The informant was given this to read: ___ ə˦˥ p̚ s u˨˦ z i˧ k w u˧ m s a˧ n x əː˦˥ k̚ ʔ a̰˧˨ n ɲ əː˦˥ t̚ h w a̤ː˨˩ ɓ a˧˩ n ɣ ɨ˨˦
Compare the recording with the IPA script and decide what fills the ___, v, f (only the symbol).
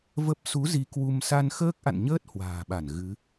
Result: v